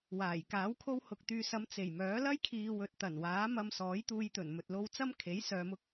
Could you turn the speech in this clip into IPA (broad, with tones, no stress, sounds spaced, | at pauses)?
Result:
w aː˨˩ j k aː˨˥ w kʰ o˥ w h ʊ˧ k̚ t̪ yː˧ s ɐ˨˧ m t͡s e˨˩ j m œː˨˥ l ɐ˥ j kʰ iː˨ w ɵ˨ t̚ t̪ ɐ˨˩ n w aː˨˥ m ɐ˧ m s ɔː˨˥ j t̪ uː˧ j t̪ ɵ˨˩ n m ɵ˨ t̚ l o˧ w t͡s ɐ˥ m kʰ e˨˥ j s œː˧ m ʊ˥ k̚